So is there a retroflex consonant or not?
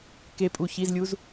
no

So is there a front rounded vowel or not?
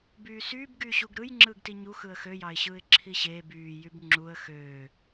yes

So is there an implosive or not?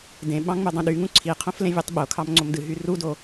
yes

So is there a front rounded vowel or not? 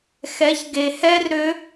yes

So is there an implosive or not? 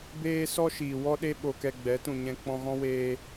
yes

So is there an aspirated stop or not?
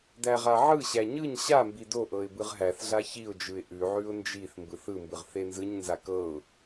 no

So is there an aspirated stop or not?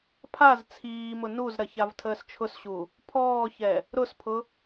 yes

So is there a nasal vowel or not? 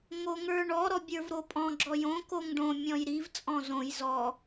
yes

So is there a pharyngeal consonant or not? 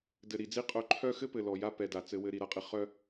no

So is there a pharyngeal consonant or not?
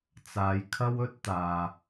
no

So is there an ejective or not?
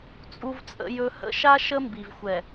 yes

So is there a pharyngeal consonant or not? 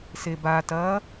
no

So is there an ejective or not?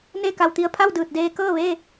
no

